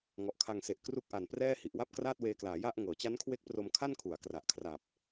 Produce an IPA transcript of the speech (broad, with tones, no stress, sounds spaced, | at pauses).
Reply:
ŋ ɔ˨˩ ʔ kʰ a˧ ŋ s e˨˩ ʔ k r u˦˥ k̚ ʔ a˨˩ n p r ɛː˥˩ h i˨˩ ʔ w a˥˩ p̚ k r aː˥˩ t̚ w eː˧ k l aː˩˦ j a˥˩ ʔ ŋ ɤː˩˦ t͡ɕ a˦˥ n kʰ w e˦˥ k̚ p r o˧ m kʰ a˥˩ n kʰ u˩˦ a̯ k r a˨˩ ʔ kʰ r a˨˩ p̚